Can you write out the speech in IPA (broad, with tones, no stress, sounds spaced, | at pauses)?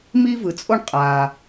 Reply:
m i˥ v ɯ˩ t͡sʼ o˥ ɳ qʼ a˩